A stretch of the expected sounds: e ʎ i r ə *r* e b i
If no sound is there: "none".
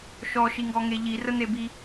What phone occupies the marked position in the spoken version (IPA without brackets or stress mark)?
n̪